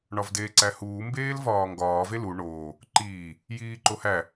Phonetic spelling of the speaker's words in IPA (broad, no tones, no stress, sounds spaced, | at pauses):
ɳ ɒ v d eː ǀ æ h uː m b eː l v ɒː ŋ ɡ ɒː v e l u ɳ oː | ǃ iː | j iː ǃ o h æ